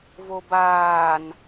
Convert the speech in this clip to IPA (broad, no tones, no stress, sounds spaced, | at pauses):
v o b aː n